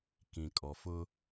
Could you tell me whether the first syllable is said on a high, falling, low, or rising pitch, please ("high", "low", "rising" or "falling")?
low